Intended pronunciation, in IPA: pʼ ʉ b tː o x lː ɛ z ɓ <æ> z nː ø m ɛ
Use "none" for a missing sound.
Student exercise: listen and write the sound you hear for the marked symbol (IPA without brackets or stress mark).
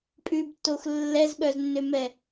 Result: œ